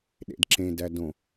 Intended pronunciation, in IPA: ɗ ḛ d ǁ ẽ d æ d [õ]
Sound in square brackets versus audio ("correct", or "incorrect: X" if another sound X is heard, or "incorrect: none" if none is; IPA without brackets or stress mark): correct